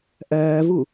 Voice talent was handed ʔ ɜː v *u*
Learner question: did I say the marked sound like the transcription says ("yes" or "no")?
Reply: yes